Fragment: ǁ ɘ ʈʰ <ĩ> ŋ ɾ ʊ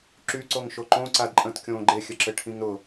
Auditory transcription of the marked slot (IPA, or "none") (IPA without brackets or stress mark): ĩ